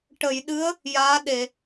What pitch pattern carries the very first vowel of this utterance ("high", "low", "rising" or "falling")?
low